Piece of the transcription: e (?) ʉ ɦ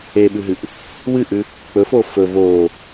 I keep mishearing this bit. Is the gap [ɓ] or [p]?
ɓ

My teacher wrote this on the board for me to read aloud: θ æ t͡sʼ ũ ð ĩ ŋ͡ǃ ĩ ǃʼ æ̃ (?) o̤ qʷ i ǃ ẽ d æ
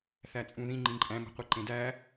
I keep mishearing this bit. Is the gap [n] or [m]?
m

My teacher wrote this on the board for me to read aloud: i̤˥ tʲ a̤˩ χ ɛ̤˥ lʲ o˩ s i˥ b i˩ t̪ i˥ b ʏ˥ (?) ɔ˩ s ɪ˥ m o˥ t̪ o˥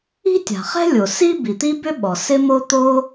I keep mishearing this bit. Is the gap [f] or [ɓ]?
ɓ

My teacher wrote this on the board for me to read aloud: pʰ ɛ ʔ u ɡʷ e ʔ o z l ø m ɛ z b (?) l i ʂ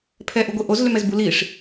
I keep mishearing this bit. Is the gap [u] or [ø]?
u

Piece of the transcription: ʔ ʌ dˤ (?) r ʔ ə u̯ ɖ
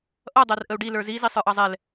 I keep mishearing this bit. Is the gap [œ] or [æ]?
æ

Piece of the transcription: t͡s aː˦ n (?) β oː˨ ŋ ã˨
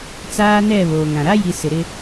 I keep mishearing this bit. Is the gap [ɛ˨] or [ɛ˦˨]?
ɛ˦˨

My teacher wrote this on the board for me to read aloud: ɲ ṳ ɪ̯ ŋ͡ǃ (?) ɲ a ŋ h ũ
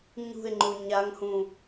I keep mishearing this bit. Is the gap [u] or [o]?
u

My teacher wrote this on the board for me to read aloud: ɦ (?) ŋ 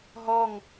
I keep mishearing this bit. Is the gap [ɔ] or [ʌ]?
ɔ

